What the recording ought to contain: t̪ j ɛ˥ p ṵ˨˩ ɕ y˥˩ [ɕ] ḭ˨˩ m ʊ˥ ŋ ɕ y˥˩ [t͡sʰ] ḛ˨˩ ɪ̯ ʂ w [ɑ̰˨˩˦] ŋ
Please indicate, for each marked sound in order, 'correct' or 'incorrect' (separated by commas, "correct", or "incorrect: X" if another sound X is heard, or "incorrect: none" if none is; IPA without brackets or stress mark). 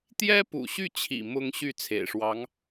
incorrect: t͡ɕʰ, correct, incorrect: ɑ˧˥